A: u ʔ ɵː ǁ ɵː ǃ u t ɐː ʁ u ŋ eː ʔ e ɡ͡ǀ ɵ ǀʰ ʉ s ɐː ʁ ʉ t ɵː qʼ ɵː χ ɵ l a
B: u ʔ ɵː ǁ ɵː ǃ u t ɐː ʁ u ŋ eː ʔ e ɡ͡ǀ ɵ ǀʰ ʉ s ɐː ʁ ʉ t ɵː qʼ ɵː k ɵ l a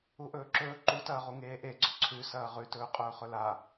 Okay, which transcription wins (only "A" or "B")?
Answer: A